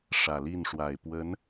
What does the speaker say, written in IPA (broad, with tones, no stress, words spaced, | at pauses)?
ʂä˨˩li˥˩nʂwa˨˩ɪ̯ pwə˧˥n